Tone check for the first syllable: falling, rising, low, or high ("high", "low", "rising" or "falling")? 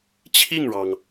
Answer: falling